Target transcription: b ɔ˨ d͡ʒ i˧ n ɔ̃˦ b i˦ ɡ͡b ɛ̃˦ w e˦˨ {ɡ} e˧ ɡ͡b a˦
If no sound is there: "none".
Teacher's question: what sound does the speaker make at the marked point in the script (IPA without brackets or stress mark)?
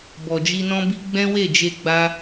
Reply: d͡ʒ